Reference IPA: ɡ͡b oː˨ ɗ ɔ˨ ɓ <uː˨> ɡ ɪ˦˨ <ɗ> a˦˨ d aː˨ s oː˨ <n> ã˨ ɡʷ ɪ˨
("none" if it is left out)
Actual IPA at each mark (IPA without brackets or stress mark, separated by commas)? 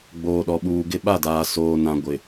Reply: uː˨, ɓ, n